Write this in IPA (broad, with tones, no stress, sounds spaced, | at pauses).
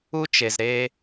u˧ t͡ʃ e˩ z ɾ e˧